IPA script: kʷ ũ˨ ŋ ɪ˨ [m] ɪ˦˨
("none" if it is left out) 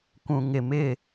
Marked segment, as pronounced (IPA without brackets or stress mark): m